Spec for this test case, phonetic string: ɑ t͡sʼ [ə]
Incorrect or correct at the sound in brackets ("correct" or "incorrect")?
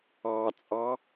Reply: incorrect